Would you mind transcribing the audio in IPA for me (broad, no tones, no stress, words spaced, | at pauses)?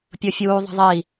pʲʊfʲuː ðˤə̤ðˤi